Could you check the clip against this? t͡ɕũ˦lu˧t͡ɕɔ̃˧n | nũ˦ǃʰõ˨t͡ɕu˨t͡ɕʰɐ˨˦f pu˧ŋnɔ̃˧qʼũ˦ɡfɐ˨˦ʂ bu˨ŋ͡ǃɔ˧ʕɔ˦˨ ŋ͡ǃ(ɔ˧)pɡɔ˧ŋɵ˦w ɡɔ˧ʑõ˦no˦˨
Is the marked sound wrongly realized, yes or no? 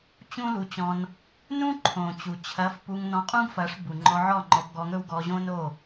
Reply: no